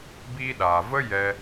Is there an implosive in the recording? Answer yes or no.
yes